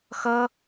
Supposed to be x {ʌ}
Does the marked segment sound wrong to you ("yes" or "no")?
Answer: no